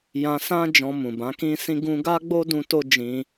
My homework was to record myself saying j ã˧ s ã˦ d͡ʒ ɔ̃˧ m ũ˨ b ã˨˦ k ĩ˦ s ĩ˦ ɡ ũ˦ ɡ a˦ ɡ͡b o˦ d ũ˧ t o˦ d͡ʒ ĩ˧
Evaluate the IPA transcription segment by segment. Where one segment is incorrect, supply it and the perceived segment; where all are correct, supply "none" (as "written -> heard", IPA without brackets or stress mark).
none